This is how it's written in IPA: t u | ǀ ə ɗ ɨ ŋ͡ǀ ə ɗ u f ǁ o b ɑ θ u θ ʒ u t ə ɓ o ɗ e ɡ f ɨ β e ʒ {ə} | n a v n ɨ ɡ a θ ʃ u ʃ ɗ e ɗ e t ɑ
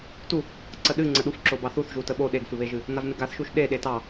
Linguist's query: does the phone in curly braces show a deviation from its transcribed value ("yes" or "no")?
yes